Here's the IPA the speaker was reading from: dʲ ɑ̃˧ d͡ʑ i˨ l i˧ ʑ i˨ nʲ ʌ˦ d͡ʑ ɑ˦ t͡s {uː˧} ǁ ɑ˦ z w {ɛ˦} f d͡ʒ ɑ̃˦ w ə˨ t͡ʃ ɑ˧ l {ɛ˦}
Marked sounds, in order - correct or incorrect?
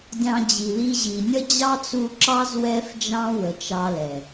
incorrect: u˧, correct, incorrect: ɛ˨

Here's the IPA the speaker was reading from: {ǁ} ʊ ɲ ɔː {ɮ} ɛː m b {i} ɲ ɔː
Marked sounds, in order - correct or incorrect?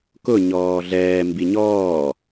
incorrect: k, correct, correct

